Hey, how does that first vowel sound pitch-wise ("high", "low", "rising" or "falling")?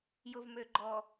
low